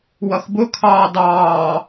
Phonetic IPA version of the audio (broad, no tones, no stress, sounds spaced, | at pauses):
w ʌ x b ʊ kʰ ɑː d ɑː